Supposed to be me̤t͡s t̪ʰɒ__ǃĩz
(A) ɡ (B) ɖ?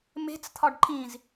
B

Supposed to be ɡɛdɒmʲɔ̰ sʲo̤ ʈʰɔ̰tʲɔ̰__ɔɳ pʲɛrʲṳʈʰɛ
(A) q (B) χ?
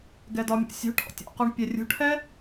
A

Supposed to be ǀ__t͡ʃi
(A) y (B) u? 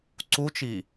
B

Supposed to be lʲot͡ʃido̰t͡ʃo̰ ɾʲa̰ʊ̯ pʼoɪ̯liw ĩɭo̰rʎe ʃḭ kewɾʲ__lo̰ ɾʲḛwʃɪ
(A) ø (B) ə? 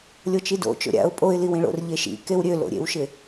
A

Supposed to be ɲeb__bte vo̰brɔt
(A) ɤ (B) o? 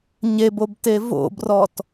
B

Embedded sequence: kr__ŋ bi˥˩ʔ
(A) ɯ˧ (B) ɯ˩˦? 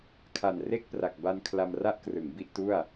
B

